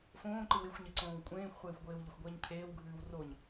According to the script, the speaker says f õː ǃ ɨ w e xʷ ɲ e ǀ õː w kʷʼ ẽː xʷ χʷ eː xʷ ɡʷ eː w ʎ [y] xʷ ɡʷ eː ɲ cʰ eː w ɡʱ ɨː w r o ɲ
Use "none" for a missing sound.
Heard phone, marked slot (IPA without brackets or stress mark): ɪ